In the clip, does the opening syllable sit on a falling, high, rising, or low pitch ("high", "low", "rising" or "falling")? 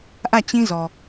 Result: falling